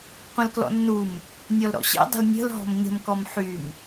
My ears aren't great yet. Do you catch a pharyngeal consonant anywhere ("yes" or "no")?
yes